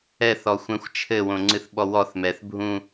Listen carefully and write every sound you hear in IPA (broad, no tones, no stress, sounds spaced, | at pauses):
ɛ θ ɔ xʷ ɛ̃ xʷ t͡ʃʰ ɘ w õ ŋ͡ǀ ɨ θ ɓ ɔ w ɔ θ m ɛ θ bʱ ũ